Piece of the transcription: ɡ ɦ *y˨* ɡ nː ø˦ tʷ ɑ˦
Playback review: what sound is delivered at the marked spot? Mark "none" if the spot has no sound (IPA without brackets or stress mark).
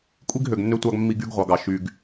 ø˨